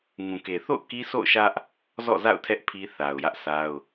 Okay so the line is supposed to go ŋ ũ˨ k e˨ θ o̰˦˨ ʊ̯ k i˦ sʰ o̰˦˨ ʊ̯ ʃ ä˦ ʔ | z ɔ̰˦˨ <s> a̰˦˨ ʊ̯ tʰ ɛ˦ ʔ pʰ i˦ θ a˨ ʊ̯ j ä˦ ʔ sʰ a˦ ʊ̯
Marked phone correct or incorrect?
incorrect